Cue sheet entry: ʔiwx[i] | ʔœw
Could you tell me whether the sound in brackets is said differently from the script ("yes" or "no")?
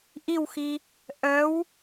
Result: no